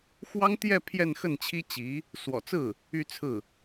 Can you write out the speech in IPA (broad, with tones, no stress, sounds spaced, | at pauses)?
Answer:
x w ɑ˥ ŋ t̪ j ɛ˥˧ pʰ j ɛ˥˧ n x ə˥˩ n t͡ɕʰ i˥ t͡ɕ i˧˥ | s w ɔ̰˨˩ t͡s ɹ̩˥˩ | y˥˧ t͡sʰ ɹ̩˥˩